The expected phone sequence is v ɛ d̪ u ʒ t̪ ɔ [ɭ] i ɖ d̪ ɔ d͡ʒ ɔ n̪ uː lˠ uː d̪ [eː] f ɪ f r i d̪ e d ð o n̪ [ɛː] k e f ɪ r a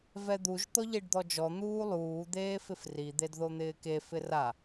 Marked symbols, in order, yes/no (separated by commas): no, yes, no